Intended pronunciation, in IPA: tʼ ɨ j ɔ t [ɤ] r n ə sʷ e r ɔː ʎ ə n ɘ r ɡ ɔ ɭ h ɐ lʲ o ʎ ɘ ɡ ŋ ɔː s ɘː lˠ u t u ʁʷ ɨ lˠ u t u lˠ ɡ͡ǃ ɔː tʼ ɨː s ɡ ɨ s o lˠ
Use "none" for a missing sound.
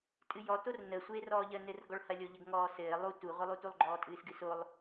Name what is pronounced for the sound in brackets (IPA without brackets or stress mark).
o